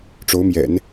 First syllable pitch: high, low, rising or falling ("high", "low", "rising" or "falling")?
rising